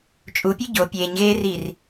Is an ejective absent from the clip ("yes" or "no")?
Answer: no